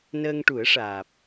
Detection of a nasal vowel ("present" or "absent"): absent